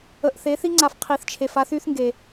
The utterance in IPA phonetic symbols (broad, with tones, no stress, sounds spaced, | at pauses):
ə˧ ʔ θ e˧˥ θ i˥ ŋ͡ǀ a˧ f qʰ i˧ θ t͡ʃʰ e˧ f a˥ θ y˥ θ ŋ ɡ e˧